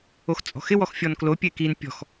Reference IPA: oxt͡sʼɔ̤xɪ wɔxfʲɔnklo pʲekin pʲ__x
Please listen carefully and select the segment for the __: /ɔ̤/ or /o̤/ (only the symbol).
ɔ̤